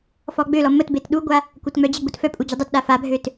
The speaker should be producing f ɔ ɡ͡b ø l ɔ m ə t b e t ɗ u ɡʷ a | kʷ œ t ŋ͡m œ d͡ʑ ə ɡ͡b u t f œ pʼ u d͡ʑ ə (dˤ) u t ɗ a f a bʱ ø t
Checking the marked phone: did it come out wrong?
no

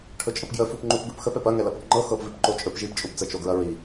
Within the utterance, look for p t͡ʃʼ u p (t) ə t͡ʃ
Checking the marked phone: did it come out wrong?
yes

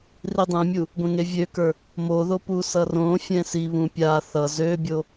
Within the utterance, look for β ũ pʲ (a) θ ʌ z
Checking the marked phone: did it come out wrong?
no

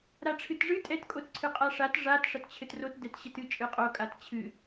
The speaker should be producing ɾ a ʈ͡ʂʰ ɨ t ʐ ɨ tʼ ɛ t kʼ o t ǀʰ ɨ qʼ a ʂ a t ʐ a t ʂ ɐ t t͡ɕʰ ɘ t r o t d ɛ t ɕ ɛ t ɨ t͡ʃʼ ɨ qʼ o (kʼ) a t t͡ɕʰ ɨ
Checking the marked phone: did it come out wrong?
no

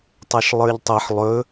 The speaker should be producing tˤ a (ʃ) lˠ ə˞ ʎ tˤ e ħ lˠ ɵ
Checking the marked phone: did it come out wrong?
no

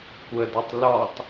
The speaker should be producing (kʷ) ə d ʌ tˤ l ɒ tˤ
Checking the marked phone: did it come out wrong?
no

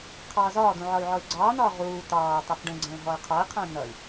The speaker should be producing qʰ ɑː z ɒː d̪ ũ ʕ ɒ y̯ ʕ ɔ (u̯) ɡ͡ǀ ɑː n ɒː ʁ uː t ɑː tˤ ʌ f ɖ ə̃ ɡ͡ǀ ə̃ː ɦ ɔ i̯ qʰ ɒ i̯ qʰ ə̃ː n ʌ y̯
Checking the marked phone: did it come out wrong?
yes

